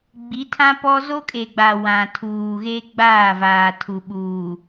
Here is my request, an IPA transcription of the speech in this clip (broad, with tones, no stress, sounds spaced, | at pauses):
ɡ͡b i˨˦ tʰ ã˦ p ɔ˦ z o˦ kʼ e˨ ɡ͡b a˨ w ã˨ tʰ uː˨ ɣ e˦ ɡ͡b aː˦˨ v aː˨ tʰ u˨ ɓ uː˨